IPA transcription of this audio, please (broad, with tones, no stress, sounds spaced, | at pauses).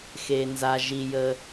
x e˩ n z a˩ ʒ i˩ j ə˩